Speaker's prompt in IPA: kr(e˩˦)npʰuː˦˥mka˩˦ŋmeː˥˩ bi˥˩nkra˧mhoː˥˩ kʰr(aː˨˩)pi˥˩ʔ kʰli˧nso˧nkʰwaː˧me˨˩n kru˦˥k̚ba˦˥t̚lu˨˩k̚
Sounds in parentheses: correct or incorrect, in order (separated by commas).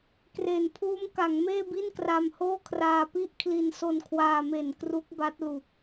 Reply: correct, incorrect